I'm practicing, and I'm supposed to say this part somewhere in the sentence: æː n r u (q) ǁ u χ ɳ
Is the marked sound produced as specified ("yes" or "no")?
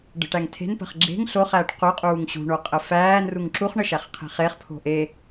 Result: no